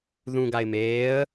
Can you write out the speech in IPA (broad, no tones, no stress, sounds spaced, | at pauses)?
ð ũ ɡ a ɪ̯ m eː ə̯